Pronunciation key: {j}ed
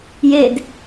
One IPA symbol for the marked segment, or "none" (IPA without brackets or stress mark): j